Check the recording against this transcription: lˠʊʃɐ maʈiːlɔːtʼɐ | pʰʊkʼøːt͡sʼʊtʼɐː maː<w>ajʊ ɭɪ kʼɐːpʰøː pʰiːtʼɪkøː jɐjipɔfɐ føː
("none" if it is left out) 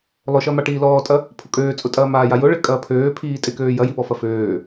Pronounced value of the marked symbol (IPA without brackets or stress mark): j